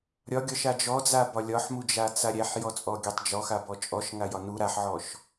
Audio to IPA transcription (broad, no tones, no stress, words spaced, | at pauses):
ɾʲɒɡʲɒʃa d͡ʒɔd͡zabɒ lʲɒħmud͡ʒat͡sa ɾʲæħjɔt͡sʼɔɡʲatˤ d͡ʒɔxabɔ t͡ʃʼɔʃŋajɒ nu ɾaħʕɔʃ